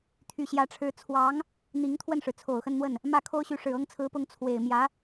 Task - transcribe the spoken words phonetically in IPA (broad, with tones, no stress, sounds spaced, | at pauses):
t̪ʰ y˨˩ ɕ j ä˧˥ ʈ͡ʂʰ ɻ̩˧˥ t͡sʰ w ɑ˧˥ ŋ | n̪ i˧˥ ŋ t̪ʰ w ə˥˩ n ʂ ɻ̩˩ t͡sʰ o˨˩ ʊ̯ x ə˥˧ n n̪ w ə˥˩ n | m ä˥˩ kʰ o˥ ʊ̯ ɕ y˧˥ ʂ ɻ̩˨˩ ɤ˥ ŋ t͡sʰ ɹ̩˧˥ p ʊ˧˥ ŋ t͡sʰ w e˨˩ ɪ̯ m j ä˧˥